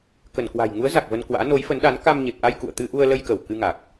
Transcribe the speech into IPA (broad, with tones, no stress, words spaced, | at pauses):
kə˧˩nkwa̤˨˩j ŋu˨˦ə̯za˨˩k̚ və˧nkwa̰ː˧˥ no˨˦jfə˨˦nɗa˨˦n ka˧mɲe˨˩p̚ʔa˧j kṵ˧˨ə̯t̪ɨ˧ʔu˧ə̯lə˧j kə˧˩w kɨ˧ŋa˨˩k̚